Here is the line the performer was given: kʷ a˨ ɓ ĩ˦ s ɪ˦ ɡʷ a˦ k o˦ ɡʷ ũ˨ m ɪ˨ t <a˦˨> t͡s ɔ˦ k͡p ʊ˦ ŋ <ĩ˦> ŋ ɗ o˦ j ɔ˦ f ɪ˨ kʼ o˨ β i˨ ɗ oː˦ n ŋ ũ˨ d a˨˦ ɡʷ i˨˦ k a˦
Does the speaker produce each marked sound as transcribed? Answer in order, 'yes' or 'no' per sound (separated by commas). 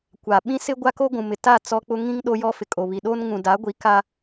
yes, yes